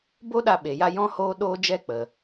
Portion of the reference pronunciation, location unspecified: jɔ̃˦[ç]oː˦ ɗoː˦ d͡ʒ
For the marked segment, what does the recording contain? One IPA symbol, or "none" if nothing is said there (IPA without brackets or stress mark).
h